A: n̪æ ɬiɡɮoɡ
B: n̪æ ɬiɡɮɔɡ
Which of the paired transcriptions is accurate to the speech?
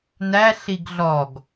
B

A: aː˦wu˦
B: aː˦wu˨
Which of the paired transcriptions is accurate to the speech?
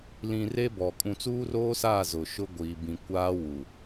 B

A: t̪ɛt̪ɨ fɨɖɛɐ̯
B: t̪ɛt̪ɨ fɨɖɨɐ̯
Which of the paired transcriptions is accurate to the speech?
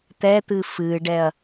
A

